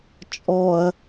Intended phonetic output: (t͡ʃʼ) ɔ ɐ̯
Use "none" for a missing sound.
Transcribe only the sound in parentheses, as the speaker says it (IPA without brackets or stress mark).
t͡ʃʼ